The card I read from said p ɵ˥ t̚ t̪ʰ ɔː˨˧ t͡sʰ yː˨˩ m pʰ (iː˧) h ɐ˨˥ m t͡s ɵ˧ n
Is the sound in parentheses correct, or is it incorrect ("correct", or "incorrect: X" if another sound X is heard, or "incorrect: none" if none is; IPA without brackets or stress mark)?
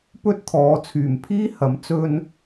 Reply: incorrect: iː˥